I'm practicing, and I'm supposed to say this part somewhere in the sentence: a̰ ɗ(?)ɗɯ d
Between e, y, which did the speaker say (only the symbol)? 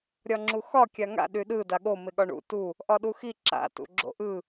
y